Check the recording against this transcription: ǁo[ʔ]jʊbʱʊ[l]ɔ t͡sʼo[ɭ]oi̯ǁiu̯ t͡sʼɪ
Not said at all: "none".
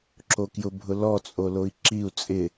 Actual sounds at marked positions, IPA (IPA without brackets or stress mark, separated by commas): k, l, l